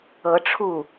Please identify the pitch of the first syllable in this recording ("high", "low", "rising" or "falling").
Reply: rising